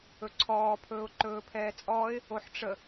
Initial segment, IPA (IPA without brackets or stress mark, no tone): ɵ